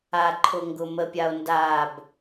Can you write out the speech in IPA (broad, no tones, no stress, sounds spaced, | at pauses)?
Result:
a ǃʰ ʊ ŋ ɡ ʊ m ə pʲ a o̯ n d a b